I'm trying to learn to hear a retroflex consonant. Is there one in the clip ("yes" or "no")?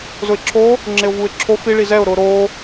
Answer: yes